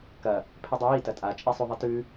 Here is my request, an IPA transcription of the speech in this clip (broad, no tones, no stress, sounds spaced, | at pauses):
k ɐ | pʰ e dˤ ɨ j i t ɐ tʼ a t͡ʃʼ i sˤ u ðˤ ɨ t ʉ